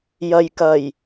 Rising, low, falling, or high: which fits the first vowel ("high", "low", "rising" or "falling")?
low